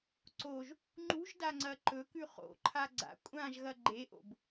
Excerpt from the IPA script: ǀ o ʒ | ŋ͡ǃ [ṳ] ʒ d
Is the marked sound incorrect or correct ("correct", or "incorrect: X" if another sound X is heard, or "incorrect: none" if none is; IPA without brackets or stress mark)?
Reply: correct